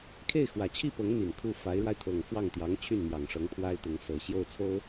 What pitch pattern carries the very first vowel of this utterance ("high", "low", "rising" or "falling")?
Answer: falling